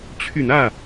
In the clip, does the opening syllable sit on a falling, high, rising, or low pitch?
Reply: low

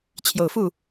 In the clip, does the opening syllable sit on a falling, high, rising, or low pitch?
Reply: low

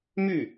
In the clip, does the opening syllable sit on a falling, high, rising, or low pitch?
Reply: falling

